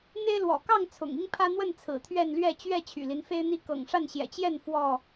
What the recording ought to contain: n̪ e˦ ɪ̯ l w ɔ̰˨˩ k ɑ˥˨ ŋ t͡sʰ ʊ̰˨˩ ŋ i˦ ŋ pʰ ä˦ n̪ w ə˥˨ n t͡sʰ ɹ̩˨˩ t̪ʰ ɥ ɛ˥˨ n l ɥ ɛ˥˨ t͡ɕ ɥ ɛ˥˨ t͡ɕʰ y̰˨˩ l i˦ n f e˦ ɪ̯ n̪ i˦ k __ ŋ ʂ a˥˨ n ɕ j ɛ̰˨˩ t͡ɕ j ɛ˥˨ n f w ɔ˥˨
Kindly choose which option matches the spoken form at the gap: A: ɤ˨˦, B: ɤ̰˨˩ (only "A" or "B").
B